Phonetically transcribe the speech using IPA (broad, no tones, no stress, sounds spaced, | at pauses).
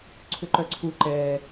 ǀʰ ʏ ǃ œ ǀʰ u ǃ ɛ